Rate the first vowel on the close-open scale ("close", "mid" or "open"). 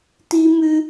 close